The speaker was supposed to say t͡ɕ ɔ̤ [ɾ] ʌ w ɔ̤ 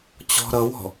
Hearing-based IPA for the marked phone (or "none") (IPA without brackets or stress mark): ɾ